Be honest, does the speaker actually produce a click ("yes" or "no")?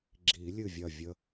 yes